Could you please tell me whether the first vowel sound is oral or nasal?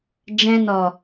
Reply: nasal